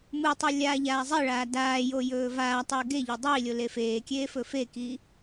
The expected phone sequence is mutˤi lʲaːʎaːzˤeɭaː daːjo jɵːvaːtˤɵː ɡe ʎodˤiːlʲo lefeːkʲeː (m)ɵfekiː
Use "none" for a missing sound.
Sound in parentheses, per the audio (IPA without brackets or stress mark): f